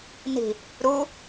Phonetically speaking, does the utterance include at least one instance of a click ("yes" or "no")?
no